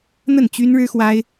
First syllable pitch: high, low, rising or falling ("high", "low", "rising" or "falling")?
falling